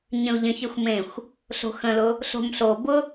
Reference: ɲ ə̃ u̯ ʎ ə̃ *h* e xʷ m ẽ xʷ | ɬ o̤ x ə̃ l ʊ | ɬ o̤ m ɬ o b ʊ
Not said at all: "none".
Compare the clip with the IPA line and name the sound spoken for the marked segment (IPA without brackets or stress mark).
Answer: ç